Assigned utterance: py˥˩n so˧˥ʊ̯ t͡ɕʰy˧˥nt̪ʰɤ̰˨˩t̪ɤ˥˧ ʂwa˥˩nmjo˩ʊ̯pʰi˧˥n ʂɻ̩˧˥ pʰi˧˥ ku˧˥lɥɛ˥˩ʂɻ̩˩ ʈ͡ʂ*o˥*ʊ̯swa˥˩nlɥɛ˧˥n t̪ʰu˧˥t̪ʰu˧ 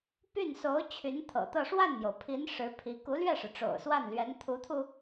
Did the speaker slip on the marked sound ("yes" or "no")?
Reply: yes